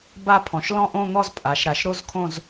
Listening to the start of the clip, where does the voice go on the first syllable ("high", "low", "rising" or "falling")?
falling